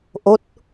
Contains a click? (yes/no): no